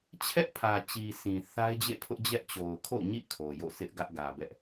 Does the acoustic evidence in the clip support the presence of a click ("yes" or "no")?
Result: no